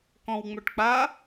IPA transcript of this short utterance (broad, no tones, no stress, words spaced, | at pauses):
kɔ̃wŋ͡mœʈk͡pa